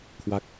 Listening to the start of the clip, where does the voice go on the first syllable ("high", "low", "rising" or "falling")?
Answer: falling